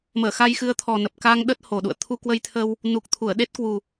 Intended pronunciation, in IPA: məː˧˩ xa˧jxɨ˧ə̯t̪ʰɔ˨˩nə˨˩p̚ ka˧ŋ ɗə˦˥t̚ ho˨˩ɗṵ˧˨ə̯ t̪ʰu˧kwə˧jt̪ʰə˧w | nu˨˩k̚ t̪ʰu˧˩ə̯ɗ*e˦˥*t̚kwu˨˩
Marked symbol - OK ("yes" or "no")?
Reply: yes